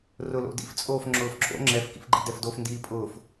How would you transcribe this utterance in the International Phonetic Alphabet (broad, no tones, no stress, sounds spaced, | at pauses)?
r ʊ l o̰ d ḭ f t͡sʼ oː f ŋ͡ǁ ʊː f ǁ o̰ ŋ͡ǁ ɛ f k ḭ f ɡ͡ǃ ḭ d ɛ f d o f n d iː pʼ ʊː f